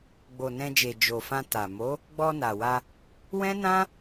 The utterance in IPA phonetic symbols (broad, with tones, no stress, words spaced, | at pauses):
ɡ͡bo˨nɛ̃˧d͡ʒe˨ d͡ʒo˨fã˧ ta˨ mo˨˦ | ɡ͡bɔ˧na˨wa˧ | wɛ̃˦nã˦